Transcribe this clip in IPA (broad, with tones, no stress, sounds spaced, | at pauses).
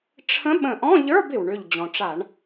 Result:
ʈ͡ʂʰ ə̃˧˥ ɓ ə̃˧˩ ʔ ɔ̃˧˥˧ ʎ ə˞˧˥˧ b ɪ˩ w ɳ ʏ˧˩ ʎ d͡ʑ ɔ̃˩ ʈ͡ʂ a˧˩˧ ɳ